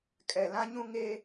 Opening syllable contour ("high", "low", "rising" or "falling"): low